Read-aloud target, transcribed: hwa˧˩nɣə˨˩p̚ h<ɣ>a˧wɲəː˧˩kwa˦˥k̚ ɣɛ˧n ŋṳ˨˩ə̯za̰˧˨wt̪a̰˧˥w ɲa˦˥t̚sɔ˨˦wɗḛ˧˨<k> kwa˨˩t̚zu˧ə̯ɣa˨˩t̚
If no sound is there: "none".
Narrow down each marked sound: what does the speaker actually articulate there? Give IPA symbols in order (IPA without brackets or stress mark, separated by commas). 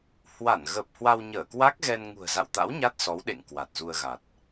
w, ŋ